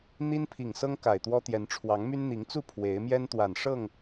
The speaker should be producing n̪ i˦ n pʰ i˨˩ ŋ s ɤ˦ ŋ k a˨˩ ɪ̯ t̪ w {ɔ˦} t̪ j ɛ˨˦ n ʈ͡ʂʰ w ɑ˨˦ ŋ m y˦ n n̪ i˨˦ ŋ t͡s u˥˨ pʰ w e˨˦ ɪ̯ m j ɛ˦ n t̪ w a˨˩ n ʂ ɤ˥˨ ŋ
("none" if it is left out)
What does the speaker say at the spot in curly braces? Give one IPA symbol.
ɔ˦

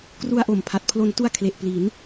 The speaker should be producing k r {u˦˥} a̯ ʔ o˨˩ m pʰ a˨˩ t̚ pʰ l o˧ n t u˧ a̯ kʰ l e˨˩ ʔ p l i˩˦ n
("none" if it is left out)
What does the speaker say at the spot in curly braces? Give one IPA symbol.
u˧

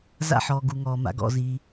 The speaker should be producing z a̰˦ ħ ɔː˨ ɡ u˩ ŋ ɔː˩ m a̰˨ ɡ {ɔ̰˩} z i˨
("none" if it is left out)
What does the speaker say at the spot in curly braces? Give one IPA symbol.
ɔ̰˨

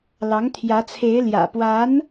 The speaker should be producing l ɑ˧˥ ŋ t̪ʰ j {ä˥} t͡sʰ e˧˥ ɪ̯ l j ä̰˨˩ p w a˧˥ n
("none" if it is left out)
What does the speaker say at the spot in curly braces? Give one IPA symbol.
ä˧˥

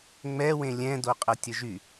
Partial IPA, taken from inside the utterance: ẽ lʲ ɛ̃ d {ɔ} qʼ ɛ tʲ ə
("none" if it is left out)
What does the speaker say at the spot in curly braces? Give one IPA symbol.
o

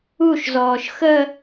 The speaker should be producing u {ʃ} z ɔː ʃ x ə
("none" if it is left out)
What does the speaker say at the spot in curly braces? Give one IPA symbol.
ʃ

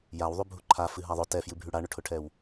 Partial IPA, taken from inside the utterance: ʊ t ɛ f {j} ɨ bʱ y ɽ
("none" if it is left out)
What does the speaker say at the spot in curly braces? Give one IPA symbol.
j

